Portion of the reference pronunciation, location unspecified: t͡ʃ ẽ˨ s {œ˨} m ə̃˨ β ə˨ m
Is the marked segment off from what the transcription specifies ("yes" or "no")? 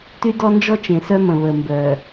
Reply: yes